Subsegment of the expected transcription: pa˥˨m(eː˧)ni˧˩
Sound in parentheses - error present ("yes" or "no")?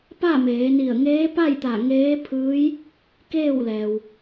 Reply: yes